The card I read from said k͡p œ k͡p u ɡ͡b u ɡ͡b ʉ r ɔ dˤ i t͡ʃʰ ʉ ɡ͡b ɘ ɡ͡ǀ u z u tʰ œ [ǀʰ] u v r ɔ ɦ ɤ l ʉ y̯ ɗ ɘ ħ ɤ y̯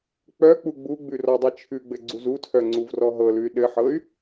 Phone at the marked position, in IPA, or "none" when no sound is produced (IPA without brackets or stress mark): ŋ͡ǀ